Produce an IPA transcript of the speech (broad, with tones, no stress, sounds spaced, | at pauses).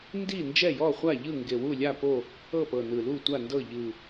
n d i˥˨ n d͡ʒ ɛ˥˨ j ɔ˥˨ χʷ a˥˨ ʎ ɯ˥˨ ŋ ɡ e˨˩ w u˥˨ lʲ a˥˨ p o˥˨ | ɤ˥˨ p ɤ˨˩ n ɯ˨˩ l u˥˨ tʷ a˥˨ n d ɤ˥˨ ʎ ɯ˨˩